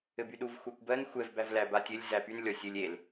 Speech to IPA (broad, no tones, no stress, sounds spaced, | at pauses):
ɘ b y ɗ u v xʷ æ kʷ b ɜ n xʷ ɛ v b æ v l æ b a tʲ ɘ lʲ z æ p y n lʲ ɔ sʲ ɘ lʲ e l